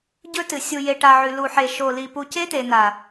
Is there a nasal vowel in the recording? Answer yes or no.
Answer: no